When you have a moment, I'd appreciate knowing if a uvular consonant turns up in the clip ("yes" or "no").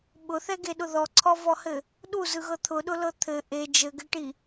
no